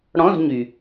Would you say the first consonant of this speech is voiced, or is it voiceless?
voiced